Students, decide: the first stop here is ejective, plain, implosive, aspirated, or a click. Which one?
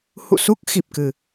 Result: plain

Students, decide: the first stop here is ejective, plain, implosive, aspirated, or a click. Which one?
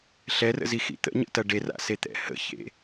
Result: plain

